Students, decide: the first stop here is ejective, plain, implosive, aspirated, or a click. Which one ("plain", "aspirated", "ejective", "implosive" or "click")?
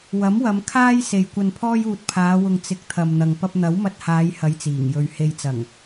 aspirated